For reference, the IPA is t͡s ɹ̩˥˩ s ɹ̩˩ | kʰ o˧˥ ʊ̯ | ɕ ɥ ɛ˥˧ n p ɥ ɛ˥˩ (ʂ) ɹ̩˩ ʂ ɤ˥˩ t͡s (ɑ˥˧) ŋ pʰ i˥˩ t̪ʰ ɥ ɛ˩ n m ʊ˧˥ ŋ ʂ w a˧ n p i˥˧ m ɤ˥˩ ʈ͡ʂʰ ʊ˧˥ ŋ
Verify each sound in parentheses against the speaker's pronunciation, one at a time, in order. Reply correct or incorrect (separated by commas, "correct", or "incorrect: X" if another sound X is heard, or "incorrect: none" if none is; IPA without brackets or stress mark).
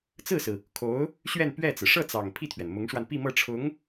incorrect: t͡s, incorrect: ɑ˨˩